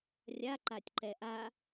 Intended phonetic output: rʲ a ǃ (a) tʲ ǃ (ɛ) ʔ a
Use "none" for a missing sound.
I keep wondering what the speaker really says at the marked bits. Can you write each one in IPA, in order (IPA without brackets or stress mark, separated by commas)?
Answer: a, ɛ